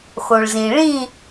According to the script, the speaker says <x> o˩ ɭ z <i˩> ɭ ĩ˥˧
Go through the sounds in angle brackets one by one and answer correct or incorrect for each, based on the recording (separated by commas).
correct, incorrect